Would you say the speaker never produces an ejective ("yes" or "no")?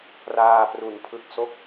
yes